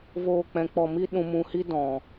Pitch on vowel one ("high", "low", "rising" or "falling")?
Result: low